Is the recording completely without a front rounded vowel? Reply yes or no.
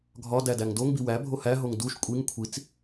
yes